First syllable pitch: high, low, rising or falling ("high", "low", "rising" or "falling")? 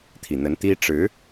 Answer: low